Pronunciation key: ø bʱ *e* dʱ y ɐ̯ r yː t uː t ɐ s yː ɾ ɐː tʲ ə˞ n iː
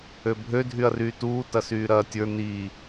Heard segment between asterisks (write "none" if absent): ø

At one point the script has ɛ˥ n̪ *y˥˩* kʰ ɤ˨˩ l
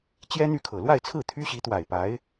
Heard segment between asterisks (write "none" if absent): y˥˩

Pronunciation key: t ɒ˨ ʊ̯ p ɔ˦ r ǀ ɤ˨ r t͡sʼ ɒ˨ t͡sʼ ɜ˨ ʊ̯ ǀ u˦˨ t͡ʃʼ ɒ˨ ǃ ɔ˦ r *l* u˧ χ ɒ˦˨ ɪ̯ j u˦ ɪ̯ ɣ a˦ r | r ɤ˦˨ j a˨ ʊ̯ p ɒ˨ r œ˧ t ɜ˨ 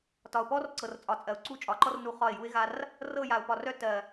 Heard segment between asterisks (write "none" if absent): n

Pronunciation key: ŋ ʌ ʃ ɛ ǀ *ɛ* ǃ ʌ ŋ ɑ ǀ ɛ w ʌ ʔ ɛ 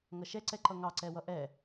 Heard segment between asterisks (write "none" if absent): ɛ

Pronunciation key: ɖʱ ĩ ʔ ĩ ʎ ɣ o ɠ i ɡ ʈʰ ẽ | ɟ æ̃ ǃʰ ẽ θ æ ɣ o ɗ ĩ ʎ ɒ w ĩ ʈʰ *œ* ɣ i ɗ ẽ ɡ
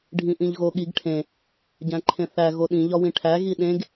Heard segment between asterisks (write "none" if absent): æ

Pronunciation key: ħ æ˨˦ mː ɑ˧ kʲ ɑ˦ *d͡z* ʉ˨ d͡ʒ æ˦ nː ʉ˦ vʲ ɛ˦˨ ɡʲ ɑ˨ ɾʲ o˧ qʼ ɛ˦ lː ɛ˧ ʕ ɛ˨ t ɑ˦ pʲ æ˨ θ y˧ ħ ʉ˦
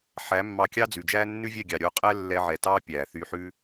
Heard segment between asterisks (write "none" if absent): d͡z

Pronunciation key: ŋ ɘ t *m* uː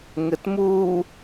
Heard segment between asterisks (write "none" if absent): m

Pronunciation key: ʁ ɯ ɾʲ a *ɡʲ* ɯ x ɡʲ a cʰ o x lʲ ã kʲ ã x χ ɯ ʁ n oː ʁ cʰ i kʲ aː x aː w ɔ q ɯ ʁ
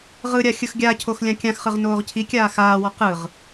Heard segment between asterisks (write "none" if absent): xʲ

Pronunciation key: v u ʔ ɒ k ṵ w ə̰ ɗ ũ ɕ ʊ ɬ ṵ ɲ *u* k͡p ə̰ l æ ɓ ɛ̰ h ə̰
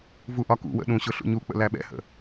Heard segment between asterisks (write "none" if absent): u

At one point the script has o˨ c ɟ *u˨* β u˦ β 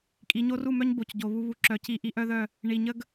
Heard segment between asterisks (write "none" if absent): o˨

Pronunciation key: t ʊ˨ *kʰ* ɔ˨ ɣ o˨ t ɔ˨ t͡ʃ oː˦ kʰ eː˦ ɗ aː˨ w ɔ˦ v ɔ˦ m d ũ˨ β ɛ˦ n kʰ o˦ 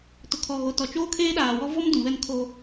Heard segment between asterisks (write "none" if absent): kʰ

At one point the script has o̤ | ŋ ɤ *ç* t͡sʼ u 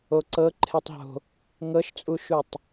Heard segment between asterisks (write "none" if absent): ʃ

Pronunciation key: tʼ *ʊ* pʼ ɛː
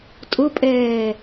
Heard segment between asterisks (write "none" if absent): ʊ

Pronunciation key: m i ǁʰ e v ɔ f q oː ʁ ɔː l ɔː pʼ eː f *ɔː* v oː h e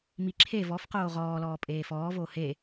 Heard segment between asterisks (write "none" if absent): ɔː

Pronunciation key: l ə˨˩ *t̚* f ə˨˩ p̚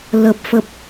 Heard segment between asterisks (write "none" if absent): p̚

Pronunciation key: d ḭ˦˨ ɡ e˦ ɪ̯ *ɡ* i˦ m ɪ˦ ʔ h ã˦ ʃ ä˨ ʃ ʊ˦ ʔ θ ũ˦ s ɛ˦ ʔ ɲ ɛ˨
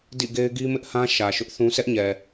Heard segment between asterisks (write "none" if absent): ɡ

